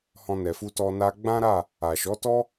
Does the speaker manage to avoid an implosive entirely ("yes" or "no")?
yes